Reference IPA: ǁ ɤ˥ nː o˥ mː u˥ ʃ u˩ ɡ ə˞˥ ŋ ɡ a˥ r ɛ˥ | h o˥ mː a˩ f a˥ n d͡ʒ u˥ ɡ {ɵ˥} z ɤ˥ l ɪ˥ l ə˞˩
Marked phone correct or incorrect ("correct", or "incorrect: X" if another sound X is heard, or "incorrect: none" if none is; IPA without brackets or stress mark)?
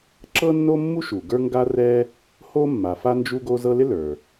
incorrect: o˥